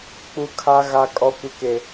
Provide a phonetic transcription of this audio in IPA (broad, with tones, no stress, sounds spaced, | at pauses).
k͡p u˦ kʰ a˦ ɣ a˦ kʼ ɔ˦ kʷ ɪ˦ k e˦